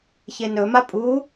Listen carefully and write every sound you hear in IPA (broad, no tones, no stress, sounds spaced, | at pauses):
ç e n ɵ m a pʼ u